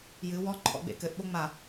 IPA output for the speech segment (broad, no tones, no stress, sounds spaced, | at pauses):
j ɨ w ɔ ǃʰ ɔ̰ ɡ͡b ḛ k ɘ ʔ ɓ o ŋ͡m a